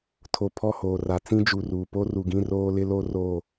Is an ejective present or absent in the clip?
absent